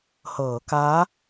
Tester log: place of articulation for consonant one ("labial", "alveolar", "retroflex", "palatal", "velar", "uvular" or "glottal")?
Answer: glottal